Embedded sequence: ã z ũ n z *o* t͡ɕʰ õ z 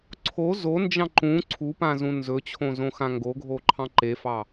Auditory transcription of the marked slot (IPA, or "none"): ɵ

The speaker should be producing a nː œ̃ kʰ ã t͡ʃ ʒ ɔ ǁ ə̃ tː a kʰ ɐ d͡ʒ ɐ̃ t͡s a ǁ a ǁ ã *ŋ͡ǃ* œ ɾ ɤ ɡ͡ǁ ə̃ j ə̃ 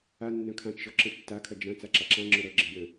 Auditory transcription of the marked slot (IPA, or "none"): ŋ͡ǁ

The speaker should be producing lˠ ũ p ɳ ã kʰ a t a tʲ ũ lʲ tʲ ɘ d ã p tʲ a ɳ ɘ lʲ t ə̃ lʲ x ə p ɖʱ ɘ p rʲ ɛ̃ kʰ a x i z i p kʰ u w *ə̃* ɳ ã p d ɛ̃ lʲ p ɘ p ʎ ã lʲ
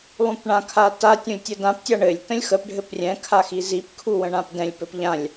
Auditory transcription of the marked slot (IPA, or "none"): ə̃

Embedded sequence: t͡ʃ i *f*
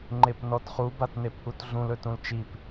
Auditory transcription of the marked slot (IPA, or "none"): p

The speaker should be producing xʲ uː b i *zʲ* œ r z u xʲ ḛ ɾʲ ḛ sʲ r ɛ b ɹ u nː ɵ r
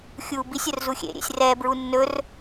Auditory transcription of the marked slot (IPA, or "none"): sʲ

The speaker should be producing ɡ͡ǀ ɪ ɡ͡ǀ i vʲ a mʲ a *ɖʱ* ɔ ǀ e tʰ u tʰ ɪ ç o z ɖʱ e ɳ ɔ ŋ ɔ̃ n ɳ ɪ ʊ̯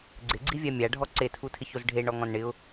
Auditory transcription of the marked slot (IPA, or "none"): ɖʱ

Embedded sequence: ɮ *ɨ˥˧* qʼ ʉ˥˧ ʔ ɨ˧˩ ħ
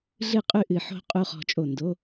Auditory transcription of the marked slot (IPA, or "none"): ɨ˥˧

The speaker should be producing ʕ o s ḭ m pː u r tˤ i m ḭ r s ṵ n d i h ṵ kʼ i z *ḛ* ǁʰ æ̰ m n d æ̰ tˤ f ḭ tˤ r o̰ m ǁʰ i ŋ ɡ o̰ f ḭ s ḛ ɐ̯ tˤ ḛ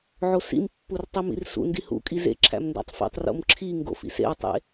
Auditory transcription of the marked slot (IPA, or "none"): ḛ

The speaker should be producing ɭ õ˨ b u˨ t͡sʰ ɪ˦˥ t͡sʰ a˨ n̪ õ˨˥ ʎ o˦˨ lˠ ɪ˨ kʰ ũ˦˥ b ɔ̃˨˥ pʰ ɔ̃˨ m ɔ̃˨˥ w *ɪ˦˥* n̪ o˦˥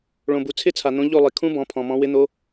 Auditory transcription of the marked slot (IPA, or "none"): ɪ˦˥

